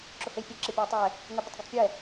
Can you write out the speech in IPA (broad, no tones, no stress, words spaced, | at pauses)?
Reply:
ǁohejpʲɛ ǁepʲejtˤɛ | ŋɛbətˤɡətˤpʲɛ